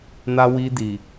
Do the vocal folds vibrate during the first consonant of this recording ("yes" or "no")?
yes